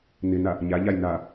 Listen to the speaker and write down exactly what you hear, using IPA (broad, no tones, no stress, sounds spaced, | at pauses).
n ɪ n a | ɲ a ʎ a j n a